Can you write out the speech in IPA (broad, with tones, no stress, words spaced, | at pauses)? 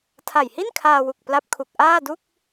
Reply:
tʰa˨˩jhi˥˩nkʰaː˧wu˨˩k̚ pla˦˥p̚kʰu˨˩k̚ ʔaː˥˩du˥˩k̚